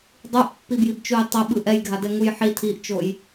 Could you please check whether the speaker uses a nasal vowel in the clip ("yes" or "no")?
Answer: no